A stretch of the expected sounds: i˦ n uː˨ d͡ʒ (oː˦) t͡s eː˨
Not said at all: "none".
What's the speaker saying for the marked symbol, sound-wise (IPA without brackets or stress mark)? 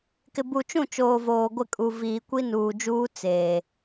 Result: uː˦